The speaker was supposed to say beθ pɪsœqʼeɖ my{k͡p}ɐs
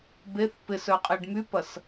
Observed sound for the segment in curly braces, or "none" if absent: p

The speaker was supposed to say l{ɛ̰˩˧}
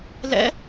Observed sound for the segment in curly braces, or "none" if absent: ɛ̰˦˥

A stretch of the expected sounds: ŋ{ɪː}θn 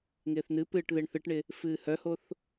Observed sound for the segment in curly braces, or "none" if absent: ɪː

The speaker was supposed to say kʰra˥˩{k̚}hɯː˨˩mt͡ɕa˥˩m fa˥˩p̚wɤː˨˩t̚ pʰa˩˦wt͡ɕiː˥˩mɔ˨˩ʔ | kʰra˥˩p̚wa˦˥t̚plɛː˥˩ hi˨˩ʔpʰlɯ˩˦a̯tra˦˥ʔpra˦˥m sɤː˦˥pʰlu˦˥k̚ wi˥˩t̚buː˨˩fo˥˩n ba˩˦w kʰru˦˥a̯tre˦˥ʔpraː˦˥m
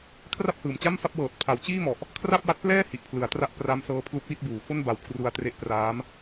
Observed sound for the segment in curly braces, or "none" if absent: p̚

